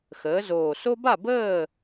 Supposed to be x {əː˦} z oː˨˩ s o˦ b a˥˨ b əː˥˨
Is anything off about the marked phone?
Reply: yes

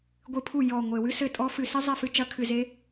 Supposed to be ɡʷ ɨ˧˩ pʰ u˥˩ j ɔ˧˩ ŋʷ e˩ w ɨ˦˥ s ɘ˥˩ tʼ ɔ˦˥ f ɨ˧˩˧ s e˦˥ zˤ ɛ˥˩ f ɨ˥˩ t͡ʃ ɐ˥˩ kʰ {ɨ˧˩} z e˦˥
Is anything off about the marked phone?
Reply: no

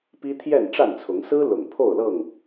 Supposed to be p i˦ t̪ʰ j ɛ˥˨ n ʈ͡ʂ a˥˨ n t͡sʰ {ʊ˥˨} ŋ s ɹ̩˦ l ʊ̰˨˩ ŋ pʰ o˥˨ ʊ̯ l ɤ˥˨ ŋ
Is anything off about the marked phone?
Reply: yes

